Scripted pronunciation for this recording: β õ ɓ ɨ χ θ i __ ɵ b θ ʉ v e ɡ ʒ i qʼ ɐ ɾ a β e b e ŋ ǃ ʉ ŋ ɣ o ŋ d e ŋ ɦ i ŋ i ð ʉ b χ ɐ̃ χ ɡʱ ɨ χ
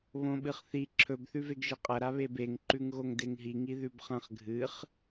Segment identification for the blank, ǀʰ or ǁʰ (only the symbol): ǁʰ